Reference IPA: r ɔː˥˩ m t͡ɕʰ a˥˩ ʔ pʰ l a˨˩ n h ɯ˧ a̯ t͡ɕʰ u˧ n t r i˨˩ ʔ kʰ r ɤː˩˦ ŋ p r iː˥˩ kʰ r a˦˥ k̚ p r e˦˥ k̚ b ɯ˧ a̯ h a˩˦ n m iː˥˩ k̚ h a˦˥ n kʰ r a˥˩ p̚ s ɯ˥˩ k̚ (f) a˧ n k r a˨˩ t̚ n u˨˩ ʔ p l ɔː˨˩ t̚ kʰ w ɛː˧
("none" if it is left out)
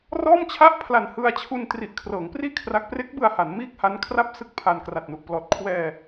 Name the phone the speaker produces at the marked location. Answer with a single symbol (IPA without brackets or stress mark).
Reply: pʰ